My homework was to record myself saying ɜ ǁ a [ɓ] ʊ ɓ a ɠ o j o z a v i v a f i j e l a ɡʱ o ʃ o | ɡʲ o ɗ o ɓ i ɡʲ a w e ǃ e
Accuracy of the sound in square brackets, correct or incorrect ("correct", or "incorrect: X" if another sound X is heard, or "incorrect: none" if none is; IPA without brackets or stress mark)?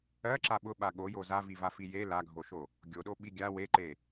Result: correct